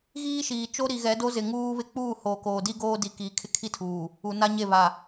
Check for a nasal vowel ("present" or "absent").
absent